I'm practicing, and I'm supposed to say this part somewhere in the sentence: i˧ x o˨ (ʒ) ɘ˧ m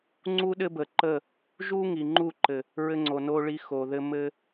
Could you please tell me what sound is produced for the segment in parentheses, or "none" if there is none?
ð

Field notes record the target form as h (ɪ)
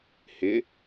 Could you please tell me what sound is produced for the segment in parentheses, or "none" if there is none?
ɪ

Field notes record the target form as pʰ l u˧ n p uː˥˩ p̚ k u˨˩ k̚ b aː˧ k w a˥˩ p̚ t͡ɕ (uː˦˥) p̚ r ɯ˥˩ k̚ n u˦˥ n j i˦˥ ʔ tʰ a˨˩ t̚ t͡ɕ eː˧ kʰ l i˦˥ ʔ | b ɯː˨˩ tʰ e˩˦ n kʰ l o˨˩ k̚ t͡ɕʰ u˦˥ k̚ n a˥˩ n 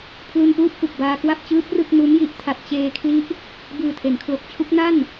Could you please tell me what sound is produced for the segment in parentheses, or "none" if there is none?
ɯː˦˥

